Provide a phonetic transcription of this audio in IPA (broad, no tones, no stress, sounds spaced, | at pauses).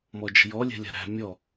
m ɔ d͡ʒ ə̤ j ɔ lʲ ɛ̤ lʲ a̤ ɾ æ̤ mʲ ɔ